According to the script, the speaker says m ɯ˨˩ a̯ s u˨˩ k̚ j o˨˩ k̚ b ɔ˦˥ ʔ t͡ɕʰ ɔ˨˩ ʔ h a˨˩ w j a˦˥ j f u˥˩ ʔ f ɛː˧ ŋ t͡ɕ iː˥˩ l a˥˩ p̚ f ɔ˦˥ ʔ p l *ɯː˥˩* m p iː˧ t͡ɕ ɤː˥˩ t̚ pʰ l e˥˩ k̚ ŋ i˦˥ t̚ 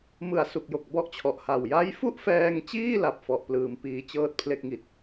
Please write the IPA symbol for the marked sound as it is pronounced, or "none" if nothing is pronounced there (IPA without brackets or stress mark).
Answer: ɯː˧